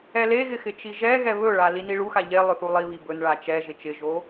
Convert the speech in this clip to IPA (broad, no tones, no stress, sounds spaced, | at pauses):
ɛ l e ɣ ɪ x ɪ t͡ʃ i ʒ ɛ ɣ ɛ β ɵ ɭ a l i n i ɭ u x a ʎ e lˠ ɵ θ u lˠ i β i b ɵ n ɭ a t͡ʃ ɛ ʒ ɪ t͡ʃ ɪ ʒ o